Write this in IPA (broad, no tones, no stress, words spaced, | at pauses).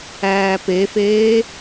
æːpefeː